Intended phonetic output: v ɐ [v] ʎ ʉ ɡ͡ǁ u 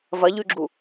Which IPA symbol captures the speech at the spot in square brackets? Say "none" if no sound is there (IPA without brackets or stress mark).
none